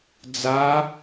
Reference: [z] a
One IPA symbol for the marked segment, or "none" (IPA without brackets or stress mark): d͡z